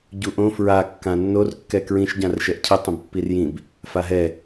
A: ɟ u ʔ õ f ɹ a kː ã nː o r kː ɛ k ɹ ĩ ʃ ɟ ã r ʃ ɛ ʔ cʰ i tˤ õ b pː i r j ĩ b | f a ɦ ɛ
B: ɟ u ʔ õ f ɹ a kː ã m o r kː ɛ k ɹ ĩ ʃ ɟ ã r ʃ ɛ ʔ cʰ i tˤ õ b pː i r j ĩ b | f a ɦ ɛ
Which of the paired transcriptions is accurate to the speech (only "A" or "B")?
A